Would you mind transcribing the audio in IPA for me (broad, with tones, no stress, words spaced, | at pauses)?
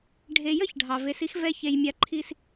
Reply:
ɖʱe˨ jə˦ç ɖʱɑ˨ve˨˦si˦x vɛ˦çe˨jmʲa˦ ǃʰi˦s